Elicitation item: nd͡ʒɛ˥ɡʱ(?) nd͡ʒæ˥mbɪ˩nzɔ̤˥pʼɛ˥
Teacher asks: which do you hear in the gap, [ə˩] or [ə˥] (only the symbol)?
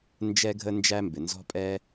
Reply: ə˥